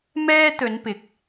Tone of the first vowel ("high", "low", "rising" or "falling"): high